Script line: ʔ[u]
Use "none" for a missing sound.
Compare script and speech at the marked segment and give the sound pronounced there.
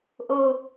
o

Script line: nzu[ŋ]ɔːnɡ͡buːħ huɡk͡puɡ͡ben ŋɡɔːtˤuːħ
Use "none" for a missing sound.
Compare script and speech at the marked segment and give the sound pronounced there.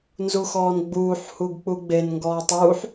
x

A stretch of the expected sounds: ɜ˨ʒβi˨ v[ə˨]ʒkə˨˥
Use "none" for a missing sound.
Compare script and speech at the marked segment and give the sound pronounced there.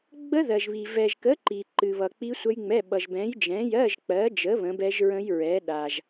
ɛ˨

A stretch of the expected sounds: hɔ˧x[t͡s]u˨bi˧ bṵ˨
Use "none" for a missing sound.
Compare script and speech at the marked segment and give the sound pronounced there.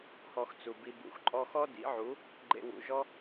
t͡s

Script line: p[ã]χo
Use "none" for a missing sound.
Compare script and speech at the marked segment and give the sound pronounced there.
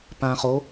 ã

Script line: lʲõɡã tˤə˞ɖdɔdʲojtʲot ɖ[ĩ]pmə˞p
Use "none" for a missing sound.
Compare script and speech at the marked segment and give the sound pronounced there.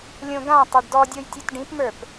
ĩ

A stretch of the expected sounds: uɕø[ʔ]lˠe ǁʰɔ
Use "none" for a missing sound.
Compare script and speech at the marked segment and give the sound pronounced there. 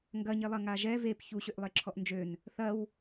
ʔ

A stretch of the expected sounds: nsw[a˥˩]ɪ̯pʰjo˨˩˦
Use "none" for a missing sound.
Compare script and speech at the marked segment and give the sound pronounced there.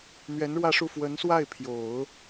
a˥˩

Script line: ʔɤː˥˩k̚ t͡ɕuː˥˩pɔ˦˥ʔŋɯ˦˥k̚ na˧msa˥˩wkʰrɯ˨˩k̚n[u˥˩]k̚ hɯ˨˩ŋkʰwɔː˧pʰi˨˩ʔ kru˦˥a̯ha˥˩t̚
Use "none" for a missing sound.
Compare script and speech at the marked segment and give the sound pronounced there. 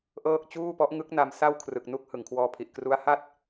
u˦˥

